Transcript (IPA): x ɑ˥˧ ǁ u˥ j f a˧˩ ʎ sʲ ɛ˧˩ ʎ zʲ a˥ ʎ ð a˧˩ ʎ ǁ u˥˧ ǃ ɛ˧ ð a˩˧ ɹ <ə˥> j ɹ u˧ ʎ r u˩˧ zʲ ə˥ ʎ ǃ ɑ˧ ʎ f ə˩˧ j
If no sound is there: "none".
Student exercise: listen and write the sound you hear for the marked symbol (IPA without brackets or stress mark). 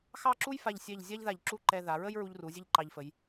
ə˥